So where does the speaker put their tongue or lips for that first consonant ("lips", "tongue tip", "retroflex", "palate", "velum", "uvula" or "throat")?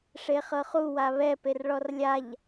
retroflex